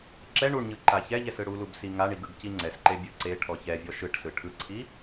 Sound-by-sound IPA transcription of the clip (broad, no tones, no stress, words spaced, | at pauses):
ǁɛ ɳuɳɲɯ ǃaçɛʎɛs ɯɽulub siŋaɳiɡ ɯɡciŋ͡ǀɛsǃe bʲɯǀeʈʰɔ çɛvʲɔ ʃɯʈsɯ ʈʰɯǀʰi